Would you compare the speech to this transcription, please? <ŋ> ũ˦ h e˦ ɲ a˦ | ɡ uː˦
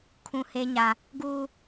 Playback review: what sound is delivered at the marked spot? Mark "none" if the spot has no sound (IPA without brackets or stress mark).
kʰ